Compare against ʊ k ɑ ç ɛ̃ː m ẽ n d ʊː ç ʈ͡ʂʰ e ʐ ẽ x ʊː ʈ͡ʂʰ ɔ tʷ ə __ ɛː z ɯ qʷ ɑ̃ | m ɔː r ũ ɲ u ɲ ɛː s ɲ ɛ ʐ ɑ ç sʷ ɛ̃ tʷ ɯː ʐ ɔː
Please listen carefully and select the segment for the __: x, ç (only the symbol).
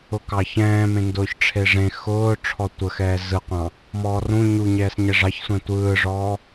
x